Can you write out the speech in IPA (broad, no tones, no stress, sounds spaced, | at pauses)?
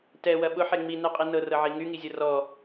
t ɛ w ɐ ɓ ʊ ħ e ŋ͡m i n ɛ qʼ i n ɤ r ɤ ʕ i ŋ y ŋ i zʲ ɤ r ɔ